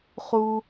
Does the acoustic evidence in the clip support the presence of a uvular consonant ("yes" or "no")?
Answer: yes